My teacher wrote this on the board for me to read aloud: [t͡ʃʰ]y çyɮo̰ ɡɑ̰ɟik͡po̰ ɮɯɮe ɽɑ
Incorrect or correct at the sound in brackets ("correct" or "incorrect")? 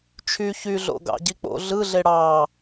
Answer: correct